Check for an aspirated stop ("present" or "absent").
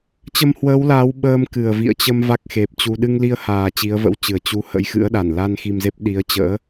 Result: absent